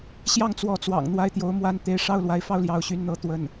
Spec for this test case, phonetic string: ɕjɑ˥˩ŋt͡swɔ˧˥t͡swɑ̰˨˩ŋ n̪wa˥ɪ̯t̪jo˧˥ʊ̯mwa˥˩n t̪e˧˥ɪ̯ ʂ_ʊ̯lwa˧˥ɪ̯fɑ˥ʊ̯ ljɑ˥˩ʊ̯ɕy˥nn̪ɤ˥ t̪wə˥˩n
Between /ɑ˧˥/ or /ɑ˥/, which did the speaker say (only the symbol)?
ɑ˥